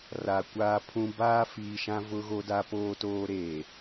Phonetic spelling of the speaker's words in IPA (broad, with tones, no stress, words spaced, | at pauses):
ra˨kʷaː˦pʰũ˦ baː˦ fiː˨ʃã˦ vʊ˦ɣo˦ da˦poː˦toː˦ ɾeː˨